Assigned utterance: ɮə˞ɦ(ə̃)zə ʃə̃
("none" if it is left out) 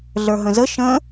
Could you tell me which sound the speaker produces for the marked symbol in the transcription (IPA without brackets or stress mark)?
ə̃